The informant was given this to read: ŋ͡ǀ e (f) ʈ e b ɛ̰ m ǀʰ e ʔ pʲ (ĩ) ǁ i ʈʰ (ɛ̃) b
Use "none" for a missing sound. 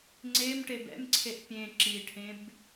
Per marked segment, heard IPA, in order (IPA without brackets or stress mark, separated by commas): m, ẽ, ẽ